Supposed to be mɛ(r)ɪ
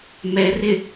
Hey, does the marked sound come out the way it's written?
yes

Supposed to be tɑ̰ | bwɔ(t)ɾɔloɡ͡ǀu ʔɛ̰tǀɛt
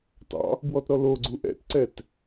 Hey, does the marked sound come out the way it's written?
yes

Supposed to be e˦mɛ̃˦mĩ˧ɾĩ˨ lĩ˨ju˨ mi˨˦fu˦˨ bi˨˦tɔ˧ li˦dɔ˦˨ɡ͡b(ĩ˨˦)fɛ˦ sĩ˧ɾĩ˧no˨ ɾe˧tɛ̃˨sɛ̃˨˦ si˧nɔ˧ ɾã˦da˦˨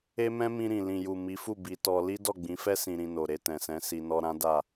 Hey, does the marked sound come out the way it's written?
yes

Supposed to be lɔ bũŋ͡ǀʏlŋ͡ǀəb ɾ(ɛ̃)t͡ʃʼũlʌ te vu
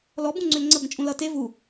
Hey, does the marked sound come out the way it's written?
no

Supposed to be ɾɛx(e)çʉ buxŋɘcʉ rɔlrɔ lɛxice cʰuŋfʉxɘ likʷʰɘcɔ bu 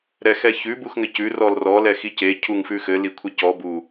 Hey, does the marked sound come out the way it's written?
no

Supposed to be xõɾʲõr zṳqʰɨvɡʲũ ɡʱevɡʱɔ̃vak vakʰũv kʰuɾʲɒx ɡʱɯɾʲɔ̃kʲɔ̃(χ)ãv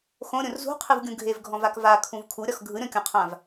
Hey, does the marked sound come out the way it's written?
no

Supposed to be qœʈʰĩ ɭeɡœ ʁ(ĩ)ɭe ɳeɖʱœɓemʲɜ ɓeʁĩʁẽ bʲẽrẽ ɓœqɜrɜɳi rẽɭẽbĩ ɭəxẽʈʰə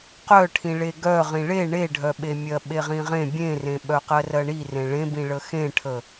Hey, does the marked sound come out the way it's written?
yes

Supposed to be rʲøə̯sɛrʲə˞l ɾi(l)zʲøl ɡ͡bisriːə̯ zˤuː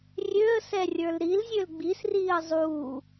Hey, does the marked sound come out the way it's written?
yes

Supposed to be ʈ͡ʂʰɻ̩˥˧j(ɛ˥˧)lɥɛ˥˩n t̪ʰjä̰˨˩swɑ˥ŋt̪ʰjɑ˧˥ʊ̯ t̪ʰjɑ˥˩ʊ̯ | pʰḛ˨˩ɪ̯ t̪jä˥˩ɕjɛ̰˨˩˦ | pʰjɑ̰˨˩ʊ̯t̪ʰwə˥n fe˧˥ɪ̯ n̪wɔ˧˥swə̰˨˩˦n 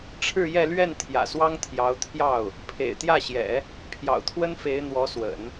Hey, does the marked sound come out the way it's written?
yes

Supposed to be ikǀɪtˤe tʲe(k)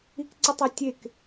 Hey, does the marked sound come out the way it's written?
yes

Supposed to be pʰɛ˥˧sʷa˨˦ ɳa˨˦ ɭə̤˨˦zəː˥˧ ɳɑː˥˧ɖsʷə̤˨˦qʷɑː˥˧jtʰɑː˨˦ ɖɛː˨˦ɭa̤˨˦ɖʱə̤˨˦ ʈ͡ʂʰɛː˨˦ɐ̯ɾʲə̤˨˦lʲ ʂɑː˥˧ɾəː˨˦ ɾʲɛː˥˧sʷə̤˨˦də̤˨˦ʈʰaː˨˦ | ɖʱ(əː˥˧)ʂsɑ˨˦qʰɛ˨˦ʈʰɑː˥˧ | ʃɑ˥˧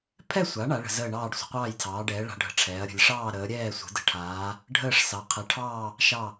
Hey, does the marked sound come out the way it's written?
yes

